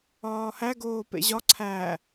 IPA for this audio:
ɒːhæɡoː pḛʑɒ ǀʰæ

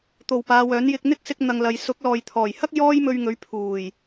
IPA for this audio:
t̪o˨wpaː˨˧ wœː˨˥njɪ˧k̚ n̪ɪ˥k̚sɪ˧k̚ n̪ɐ˨ŋlɐ˨j sʊ˨˥k̚lɔː˨j t̪ʰɔː˨˩jhɐ˥k̚ jɔː˥jmɵ˧ɥŋɵ˨˥ɥ pʰuː˨˩j

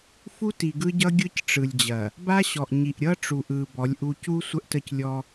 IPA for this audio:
fu˦ti˨ɡɯ˦ɟʌ˦ ɡʲɯ˦c ʈ͡ʂɯ˨lʲd͡ʑɐ˨ | ba˦ɕɔ˨ʔɲi˨ʔ ɾʲʌ˦ʈ͡ʂu˨ʔɯ˨ bɔ˨˦lʲʔu˦ cu˦ sʷə˦ʔtə˦˨clʲɔ˦

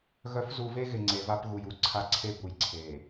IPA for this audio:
ɣœ˨˦fzu˨ve˦ɣɪ˨ ŋ͡ǀe˨va˦p ɣu˨ju˨ǀʰa˦ ǀʰe˦bu˨jǀʰe˨

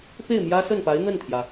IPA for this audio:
pe˥˩ɪ̯mjä˥sə˥˩npa˧˥ɪ̯ n̪ə˥˩nt̪ʰjä˩

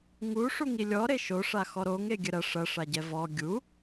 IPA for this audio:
ŋuʂuŋi lʲɔɾe ʃo ʂaxɔɾoŋ eɡʲɘɾɐ ʂɐʂaɟɛ vɔ ɡʲu

